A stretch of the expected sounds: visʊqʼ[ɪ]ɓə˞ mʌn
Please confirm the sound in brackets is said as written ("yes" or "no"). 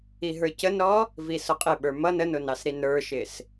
yes